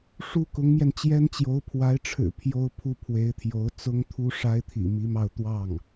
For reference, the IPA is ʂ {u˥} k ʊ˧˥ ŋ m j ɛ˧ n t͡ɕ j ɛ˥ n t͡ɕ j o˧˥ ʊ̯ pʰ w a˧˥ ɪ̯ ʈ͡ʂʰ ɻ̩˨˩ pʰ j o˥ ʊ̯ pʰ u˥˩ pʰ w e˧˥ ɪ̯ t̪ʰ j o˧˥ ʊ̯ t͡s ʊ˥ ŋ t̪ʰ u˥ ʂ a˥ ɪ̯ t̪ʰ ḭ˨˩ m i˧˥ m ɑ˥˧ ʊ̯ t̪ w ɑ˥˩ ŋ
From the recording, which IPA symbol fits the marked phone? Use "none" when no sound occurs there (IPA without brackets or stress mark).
u˥